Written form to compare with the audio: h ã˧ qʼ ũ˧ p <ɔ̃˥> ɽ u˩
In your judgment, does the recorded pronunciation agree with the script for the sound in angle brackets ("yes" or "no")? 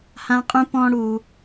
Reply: no